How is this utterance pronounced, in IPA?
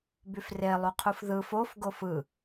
b y f r e lˠ u qʰ u f ð ɯ f o f ɡ o f ɯ

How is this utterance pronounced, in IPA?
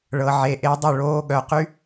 ɭ ɤ˨ ʕ e˨ ʔ eː˧ dˤ ɵ˦˨ ɭ oː˧ ɠ œ˨ q y˦

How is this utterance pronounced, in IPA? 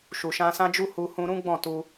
ʃ u˨ ʃ ã˧ s ã˦ d͡ʒ u˦ h u˧ h ũ˧ ɾ ũ˦ ɡ͡b ɔ̃˦˨ t u˧

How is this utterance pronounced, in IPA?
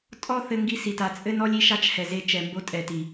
tʼ ɔ˦ θ ɘ˧ ŋ ɡ i˧ s i˨ t a˧ t͡sʼ ɘ˦ n ɔ˦ lʲ i˧ ʃ a˦ t͡ʃ h ɛ˨ z e˧ t͡ʃ ɛ˨ m b o˦ tʼ ɛ˨ t i˨

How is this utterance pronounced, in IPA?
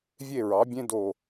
vʲ e˥˨ ɹ ɑ˩˥ bʲ ẽ˥ d o˧˩

